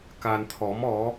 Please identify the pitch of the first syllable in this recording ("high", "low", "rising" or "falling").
low